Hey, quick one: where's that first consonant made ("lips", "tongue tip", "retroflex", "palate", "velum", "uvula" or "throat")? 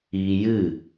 palate